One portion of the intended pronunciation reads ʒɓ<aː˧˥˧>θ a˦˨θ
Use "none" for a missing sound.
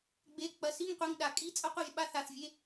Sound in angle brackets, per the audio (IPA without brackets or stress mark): a˧˥˧